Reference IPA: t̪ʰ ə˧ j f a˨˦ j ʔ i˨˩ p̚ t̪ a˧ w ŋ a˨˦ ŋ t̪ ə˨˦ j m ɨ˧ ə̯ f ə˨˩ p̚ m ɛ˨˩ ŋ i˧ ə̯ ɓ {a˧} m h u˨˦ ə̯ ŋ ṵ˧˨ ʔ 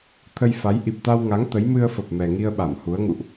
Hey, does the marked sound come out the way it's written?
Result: no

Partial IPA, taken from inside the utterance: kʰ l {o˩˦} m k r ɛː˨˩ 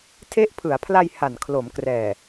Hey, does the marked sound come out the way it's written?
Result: yes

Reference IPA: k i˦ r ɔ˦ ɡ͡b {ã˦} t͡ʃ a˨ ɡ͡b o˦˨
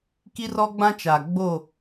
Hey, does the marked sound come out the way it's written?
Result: yes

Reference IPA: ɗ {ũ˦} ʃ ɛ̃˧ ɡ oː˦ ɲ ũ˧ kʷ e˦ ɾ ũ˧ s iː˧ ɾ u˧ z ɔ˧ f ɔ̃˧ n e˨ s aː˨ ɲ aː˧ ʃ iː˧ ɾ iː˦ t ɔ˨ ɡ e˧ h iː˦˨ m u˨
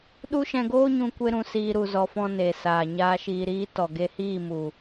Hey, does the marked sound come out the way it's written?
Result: no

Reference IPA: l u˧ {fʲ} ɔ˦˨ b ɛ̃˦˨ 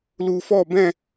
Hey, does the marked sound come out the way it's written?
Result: no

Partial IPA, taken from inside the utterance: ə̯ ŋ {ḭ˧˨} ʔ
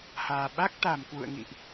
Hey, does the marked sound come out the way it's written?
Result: yes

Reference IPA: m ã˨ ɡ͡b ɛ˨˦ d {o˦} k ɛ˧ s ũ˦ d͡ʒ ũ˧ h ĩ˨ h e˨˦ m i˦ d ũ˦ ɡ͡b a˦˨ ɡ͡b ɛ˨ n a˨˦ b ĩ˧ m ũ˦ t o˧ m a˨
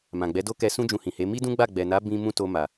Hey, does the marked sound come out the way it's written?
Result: yes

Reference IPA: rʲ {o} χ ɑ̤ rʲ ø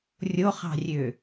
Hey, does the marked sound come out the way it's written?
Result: yes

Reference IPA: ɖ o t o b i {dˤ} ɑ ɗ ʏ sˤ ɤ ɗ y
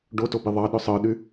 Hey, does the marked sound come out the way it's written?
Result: no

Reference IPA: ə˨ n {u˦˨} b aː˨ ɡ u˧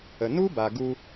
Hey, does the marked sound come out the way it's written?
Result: no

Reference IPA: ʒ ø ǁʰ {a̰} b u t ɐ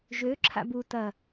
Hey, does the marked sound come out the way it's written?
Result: yes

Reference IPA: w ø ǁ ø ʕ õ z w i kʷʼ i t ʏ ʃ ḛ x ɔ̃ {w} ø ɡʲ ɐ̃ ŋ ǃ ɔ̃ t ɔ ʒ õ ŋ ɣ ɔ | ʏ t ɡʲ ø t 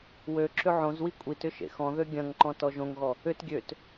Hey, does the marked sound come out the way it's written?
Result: no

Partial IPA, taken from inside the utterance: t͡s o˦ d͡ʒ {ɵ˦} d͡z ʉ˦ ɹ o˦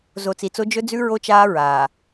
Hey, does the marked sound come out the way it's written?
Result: yes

